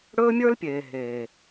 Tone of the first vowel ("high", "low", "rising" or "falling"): high